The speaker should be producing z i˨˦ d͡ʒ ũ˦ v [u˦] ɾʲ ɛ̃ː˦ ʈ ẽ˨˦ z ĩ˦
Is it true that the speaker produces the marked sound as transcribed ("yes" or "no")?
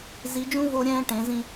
no